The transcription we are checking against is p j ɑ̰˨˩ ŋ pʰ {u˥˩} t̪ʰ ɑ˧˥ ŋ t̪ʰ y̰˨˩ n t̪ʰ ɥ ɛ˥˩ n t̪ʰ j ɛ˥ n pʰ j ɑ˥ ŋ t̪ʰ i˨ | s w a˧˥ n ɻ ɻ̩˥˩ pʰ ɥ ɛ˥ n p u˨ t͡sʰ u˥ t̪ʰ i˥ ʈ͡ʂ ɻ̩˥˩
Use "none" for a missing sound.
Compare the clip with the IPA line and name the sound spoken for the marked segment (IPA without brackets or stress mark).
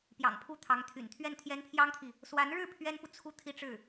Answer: u˥˩